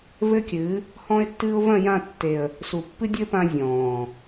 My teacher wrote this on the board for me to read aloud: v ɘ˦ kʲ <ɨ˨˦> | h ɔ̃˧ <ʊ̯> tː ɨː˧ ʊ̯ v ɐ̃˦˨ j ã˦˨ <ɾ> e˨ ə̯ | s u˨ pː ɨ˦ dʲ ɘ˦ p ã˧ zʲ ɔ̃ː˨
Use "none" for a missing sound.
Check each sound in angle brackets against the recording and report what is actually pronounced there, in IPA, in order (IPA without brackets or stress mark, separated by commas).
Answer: ɨ˨˦, ɪ̯, tː